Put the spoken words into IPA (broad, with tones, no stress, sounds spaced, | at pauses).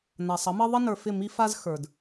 n a˨ sˤ ʌ˨˦ m ʌ˦ ðˤ ə˦ n ə˞˨ f ɪ˦˨ m i˦ f a˦ z x ə˞˨ d